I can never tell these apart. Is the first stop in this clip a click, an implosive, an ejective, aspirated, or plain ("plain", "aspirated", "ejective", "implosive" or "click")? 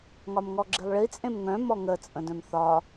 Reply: click